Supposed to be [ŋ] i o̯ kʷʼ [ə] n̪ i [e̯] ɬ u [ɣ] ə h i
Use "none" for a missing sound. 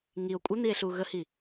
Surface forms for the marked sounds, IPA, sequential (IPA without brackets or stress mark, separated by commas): ŋ, ə, e̯, ɣ